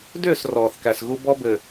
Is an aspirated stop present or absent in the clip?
absent